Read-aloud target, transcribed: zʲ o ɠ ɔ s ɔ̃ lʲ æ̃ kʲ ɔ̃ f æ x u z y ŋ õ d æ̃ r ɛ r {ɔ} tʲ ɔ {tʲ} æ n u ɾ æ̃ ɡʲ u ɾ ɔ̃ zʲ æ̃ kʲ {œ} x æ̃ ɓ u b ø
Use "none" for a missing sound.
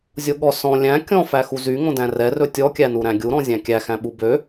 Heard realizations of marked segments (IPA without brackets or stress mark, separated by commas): ɵ, kʲ, æ